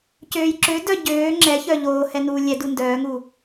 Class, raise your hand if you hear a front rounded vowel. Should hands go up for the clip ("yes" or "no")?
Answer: yes